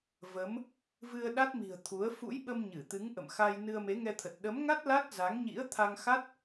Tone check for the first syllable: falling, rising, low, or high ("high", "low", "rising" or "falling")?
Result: rising